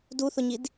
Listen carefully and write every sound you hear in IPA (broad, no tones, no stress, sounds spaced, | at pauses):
d u θ ʊ ɲ i d